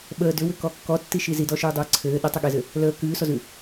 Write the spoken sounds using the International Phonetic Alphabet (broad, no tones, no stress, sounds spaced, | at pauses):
ɓ əː d ʏ w ʏ k ɔ kː ɔ tː i ʃ i z i d ɔ ʃ ʉː dˤ ɘː ǀʰ ɘː ɗ ə tˤ ə ɠ e z ɘ | l əː k ʉː s ɔ z ʉ